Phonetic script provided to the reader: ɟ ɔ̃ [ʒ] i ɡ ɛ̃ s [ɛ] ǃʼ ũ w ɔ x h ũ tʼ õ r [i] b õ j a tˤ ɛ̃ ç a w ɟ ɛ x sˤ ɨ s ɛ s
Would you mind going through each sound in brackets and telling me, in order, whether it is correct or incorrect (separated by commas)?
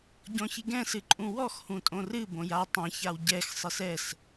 incorrect, incorrect, incorrect